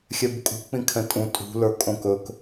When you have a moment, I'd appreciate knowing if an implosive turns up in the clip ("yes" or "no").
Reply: no